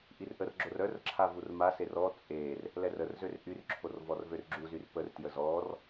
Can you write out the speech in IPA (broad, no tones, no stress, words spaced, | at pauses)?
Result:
ʔirʔərɡ͡ǁor œrǁʰa vurmaser ɔ t͡sʼer | lɛrərzør ʔyrǁʰor vɔrvørɡ͡ǁuzyr pərtjə zɔr